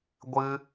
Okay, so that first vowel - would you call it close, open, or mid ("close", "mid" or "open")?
close